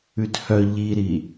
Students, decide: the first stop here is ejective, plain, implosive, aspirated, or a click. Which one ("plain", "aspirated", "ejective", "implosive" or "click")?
plain